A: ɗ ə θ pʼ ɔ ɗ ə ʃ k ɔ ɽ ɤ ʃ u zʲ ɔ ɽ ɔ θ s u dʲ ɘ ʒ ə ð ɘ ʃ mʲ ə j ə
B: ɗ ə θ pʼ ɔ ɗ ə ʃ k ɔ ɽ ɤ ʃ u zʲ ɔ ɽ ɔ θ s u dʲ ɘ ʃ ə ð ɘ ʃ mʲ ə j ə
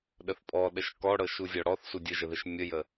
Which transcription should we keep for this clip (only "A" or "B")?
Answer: A